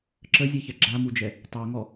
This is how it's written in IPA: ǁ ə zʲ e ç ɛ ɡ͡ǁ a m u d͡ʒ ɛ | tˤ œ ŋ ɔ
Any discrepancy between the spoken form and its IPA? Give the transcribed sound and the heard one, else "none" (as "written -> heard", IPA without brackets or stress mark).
none